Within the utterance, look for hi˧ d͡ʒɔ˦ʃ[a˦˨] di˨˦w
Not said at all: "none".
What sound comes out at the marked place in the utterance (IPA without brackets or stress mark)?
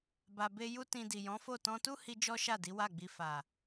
a˦˨